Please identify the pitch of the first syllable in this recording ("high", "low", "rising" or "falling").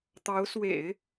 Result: rising